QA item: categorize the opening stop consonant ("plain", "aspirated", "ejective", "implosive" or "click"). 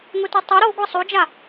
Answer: plain